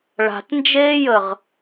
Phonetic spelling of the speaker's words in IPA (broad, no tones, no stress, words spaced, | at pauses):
ɭa̤tnd͡ʒeːjəʁ